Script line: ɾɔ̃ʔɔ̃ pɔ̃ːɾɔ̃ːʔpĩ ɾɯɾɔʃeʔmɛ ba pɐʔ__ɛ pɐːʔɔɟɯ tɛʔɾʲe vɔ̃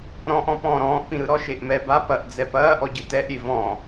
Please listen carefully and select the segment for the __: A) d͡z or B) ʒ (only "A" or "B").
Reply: A